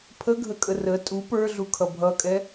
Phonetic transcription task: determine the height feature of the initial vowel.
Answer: mid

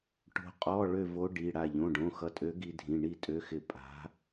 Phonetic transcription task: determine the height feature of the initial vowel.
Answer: mid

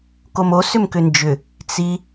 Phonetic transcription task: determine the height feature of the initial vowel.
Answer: mid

